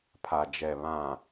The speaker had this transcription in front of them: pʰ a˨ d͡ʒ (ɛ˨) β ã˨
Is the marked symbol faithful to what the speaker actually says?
yes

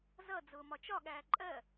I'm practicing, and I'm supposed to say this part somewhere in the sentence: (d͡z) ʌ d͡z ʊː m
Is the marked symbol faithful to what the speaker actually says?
no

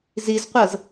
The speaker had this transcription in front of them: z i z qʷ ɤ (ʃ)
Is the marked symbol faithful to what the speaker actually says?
no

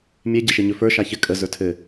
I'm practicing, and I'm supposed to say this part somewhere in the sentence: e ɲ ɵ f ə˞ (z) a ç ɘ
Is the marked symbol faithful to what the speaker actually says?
no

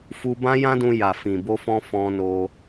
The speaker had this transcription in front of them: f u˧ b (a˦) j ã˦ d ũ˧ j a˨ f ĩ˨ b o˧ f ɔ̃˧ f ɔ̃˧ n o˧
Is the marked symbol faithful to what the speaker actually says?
no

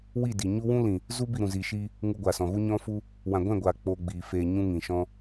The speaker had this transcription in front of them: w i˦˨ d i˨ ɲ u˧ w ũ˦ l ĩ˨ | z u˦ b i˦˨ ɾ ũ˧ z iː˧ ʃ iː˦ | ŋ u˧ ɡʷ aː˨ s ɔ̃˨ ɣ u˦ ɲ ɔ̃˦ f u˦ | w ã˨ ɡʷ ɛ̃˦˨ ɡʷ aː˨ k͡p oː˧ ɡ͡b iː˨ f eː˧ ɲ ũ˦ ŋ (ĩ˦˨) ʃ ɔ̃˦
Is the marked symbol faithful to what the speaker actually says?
no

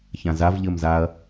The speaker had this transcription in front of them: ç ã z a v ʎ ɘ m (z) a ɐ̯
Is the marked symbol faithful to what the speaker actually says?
yes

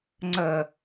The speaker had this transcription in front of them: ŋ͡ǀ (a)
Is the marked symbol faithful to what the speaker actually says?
no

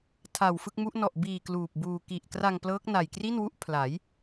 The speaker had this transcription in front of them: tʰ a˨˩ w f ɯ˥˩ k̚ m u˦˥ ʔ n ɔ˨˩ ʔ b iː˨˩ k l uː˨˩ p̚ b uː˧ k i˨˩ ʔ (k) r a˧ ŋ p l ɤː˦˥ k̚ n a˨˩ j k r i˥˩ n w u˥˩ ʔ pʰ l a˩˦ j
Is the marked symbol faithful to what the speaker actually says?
yes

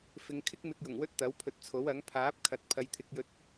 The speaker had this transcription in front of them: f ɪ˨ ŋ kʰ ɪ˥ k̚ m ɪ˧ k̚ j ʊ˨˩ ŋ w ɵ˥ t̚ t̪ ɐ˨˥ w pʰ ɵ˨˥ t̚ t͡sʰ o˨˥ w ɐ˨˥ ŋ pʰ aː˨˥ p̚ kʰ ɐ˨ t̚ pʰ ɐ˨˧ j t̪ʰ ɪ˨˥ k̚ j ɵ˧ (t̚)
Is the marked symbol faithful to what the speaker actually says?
yes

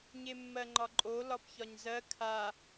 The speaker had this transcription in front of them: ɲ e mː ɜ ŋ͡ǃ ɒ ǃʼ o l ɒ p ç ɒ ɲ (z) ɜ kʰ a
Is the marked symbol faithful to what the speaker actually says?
yes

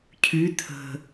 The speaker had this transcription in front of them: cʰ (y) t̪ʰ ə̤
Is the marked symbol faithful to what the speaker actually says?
yes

